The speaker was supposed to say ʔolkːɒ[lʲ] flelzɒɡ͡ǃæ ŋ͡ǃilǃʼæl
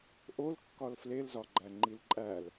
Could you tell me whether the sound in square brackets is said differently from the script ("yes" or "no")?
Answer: yes